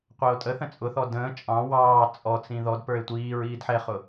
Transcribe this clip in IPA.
qʷ ɛ o̯ tʼ ə θ ə̃ t͡sʼ ʊ θ ɔ d ə̃ː t͡ʃʼ ɑ̃ w ɑː t͡sʼ ɔ t͡s ĩ ð ɔ d p ə˞ e̯ tʷ iː ɹ iː d ħ ɛ χ ʊ

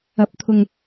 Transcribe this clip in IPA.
ɐ˨˥ p̚ t̪ʰ ʊ˨ ŋ

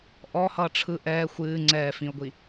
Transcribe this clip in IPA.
ʔ ɔ h ʌː ʈ͡ʂʰ ɯ ʔ ɛː xʷ ɨː ŋ͡ǀ ɛː f ĩ ʊ̯ ɡʷ i

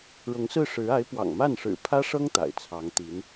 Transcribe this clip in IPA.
ɻ ʊ˧˥ ŋ s ɹ̩˥˩ ʂ ɻ̩˧˥ a˧˥ ɪ̯ p w ɑ̰˨˩ ŋ m a˥˩ n ʂ ɻ̩˨˩ pʰ ä˥ ʂ ɤ˥ ŋ t̪ a̰˨˩ ɪ̯ t͡sʰ ɑ˧˥ ŋ t̪ i˧˥ n

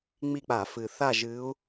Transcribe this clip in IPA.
ŋ͡m i˦˨ k͡p a˧˩˧ f ɨ˩ θ a˦˨ ʒ ɨ˨˦ u̯

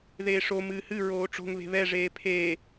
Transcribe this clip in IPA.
ð eː ʂ o m ɨː h ɨ ɹ oː ʈ͡ʂ o̤ ŋ β e̤ β ɛ ʐ eː pʰ eː

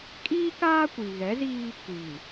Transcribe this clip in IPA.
kʼ iː˦ k aː˦ kʷ i˨ ɣ ɛ˨˦ z iː˦ | kʷ iː˨

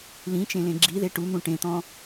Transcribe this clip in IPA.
l ĩ t͡ʃ ẽ l ẽ ɡ͡ǁ i ð e ʈ u n̪ ũ ʈ ẽ t̪ ɔ̃

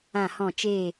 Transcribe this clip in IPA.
ã˦˨ h ɔ̃˦˨ t͡ʃ e˦˨

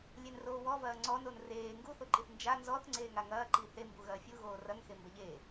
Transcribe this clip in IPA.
lʲ e n r oː w ɔ v ɐː ŋ͡ǀ ɔ n o n r eː ŋ ɡ u θ o ǃ i θ n d͡ʒ a n z ɔ θ ŋ͡ǀ eː ŋ a ŋ ɐː ǃ i θ e m b u ɣ ɐː fʲ u ɣ oː r ɐ ŋ x e m b ɐ ʎ e

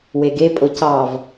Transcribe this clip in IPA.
w e ɡ e pʼ o c ɑ v

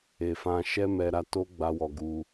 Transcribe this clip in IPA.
e˨ f ã˧ ʃ ɛ˦ m ɛ˧ ɾ a˧ t o˦ ɡ͡b a˦ w ɔ˧ ɡ u˧

